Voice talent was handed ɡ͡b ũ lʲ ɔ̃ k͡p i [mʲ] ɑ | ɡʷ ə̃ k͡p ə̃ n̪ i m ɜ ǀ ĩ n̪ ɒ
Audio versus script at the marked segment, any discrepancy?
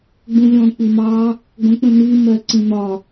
yes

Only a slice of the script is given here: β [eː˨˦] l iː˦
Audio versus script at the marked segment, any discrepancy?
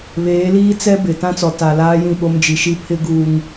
no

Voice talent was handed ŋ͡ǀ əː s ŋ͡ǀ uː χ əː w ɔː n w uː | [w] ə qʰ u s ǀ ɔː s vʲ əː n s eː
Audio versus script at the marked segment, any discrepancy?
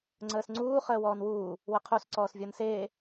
no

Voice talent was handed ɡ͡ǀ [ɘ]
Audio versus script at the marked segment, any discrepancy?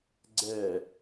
yes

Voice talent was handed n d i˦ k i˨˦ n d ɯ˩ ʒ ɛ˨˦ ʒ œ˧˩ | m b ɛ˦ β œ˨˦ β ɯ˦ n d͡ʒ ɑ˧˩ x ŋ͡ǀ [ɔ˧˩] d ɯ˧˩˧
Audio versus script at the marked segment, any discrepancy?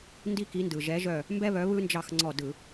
no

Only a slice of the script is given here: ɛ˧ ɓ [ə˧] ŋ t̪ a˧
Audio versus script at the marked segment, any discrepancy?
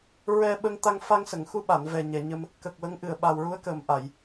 no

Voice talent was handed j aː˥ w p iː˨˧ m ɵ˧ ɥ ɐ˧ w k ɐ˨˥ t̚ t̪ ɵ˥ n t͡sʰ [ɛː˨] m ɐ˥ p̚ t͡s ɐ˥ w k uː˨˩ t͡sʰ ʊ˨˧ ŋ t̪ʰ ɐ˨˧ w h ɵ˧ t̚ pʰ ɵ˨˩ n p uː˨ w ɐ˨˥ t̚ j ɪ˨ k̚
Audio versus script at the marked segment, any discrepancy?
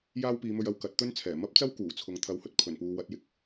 yes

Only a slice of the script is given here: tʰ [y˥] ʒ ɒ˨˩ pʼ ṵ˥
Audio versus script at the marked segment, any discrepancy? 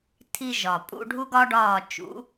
yes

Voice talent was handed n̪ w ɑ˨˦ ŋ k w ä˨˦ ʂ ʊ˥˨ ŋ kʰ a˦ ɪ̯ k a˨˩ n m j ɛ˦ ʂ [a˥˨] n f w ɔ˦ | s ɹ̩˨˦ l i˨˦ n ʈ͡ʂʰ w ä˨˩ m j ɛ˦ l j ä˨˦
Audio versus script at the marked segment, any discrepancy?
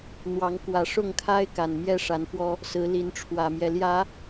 yes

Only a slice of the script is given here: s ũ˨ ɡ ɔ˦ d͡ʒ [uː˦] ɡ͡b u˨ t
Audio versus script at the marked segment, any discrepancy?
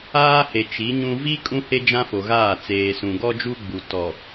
yes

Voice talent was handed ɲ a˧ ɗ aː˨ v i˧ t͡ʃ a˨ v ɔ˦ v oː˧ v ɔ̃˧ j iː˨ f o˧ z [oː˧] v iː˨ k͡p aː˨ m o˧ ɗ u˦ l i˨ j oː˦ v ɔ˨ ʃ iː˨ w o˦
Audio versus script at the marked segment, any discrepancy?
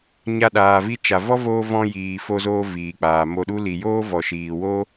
no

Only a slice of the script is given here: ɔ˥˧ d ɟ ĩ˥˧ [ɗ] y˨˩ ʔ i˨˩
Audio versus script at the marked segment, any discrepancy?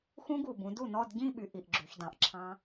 yes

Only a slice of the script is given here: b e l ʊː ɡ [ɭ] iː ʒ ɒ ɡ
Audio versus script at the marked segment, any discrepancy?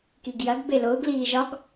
yes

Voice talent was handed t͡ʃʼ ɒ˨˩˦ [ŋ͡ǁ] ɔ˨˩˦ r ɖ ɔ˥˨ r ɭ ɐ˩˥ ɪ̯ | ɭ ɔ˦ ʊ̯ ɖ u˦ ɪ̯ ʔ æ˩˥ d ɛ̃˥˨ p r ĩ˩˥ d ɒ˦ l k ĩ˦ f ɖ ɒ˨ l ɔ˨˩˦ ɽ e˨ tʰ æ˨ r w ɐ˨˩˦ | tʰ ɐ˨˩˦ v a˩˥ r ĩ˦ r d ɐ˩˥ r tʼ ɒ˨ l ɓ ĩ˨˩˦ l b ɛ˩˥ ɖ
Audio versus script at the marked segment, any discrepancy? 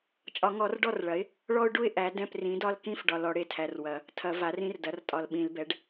yes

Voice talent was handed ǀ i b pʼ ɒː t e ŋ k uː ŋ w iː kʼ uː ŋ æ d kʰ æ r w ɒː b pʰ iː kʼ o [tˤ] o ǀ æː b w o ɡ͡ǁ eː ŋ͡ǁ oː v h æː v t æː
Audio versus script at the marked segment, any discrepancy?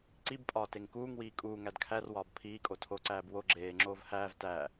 yes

